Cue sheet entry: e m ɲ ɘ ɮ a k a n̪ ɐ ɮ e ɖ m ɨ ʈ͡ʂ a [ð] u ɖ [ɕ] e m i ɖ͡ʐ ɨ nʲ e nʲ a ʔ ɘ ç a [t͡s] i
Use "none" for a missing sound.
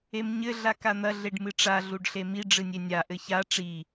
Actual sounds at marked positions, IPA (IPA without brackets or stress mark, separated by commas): ɮ, ɬ, ʈ͡ʂ